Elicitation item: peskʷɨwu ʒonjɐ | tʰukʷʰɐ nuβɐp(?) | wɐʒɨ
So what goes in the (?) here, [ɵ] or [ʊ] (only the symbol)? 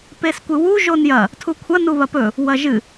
ɵ